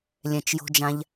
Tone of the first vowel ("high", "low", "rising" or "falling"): low